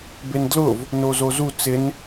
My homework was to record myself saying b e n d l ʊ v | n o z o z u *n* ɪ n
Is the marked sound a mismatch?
yes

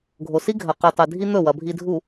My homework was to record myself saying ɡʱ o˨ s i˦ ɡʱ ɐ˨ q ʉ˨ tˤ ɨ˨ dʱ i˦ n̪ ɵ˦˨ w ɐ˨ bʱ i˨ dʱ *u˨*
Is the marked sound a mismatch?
no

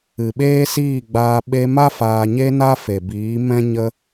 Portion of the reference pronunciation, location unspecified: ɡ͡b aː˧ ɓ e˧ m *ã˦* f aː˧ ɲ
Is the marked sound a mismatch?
yes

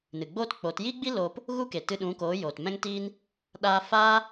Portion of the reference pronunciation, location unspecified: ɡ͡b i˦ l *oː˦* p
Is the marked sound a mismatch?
yes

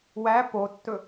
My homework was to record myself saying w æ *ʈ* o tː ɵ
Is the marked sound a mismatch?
yes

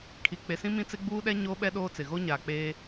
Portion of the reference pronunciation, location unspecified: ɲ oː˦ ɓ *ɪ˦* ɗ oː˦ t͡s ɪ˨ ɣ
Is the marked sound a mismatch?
yes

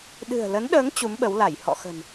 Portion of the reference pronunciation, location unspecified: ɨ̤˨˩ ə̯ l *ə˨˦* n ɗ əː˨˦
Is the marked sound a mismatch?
no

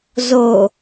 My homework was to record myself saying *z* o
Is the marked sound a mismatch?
no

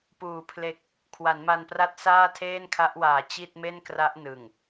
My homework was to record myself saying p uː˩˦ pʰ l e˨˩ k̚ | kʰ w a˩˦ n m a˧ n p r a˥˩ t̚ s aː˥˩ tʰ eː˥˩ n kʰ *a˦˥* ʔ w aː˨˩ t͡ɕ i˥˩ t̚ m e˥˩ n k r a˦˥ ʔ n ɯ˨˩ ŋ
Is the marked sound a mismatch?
no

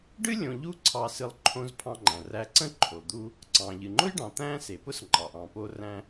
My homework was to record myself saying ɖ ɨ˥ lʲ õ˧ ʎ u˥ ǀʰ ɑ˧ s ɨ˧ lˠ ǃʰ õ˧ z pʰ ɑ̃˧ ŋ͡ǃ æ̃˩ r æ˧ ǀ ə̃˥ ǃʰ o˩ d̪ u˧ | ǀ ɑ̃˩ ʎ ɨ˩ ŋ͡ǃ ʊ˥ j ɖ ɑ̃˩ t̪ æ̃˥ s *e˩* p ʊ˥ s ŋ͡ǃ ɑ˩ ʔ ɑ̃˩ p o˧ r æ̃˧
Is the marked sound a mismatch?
no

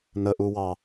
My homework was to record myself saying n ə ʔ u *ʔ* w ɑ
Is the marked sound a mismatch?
yes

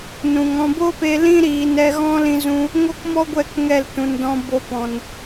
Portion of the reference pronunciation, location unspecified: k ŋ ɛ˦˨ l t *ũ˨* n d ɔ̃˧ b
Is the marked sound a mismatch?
no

